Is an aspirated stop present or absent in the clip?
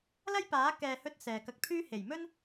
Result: present